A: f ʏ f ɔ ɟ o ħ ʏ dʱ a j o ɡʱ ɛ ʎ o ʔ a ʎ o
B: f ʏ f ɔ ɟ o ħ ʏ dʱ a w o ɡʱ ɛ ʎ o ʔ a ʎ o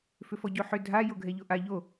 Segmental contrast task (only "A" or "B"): A